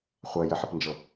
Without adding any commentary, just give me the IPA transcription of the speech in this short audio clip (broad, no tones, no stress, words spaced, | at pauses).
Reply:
χʷɜjəħəpnd͡ʒɤ